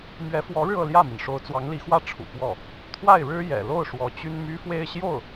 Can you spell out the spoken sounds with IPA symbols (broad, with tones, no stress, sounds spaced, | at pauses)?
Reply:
m ɥ ɛ˧˥ f w ɔ˧˥ ɻ ɻ̩˧ ɤ˥˧ l j ä˥˩ m i˩ n ʂ o˧˥ ʊ̯ t͡s w ɑ˧˥ ŋ l i˧˥ x w ä˥˩ ʈ͡ʂʰ ṵ˨˩ p w ɔ˥˩ | t̪ʰ w a˥˩ ɪ̯ ɻ ɻ̩˥ j ɛ̰˨˩ l o˥˩ ʊ̯ ʂ w ɔ˧˥ t͡ɕ y˥ n m y˥ f w e˥˧ ɪ̯ ɕ j o˥˩ ʊ̯